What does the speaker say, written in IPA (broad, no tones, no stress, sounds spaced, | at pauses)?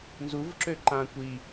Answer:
n z u v ǁ ø ǃ ã kʷ i